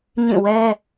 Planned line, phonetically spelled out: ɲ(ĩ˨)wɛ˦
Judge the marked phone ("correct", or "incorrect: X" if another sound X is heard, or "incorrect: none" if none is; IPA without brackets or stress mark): incorrect: ĩ˦˨